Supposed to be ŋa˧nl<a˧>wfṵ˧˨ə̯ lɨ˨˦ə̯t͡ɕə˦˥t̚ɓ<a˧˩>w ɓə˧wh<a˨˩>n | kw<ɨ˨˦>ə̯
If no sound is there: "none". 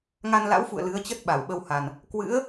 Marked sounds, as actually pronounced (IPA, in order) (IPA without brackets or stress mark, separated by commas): a̰˧˥, a˧˩, a˨˩, ɨ̰˧˥